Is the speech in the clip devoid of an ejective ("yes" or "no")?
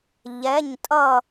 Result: no